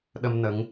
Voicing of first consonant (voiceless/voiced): voiced